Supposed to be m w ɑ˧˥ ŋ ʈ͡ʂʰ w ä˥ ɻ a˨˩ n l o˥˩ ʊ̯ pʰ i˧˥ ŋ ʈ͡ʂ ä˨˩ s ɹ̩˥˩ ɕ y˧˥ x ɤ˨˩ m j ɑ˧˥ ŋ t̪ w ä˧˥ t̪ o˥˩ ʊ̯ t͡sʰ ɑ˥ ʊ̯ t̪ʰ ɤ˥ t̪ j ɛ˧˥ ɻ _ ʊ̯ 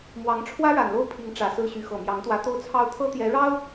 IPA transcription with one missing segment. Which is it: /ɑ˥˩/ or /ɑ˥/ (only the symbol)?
ɑ˥